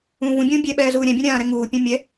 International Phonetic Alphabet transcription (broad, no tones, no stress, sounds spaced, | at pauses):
ũː v ũ bʲ ũː bʲ ɛ ɓ ɛː z uː ɾʲ ɛ̃ bʲ ũ ɾʲ ãː ɾ ɛ ŋ uː pʲ ɛ̃ mʲ ɛ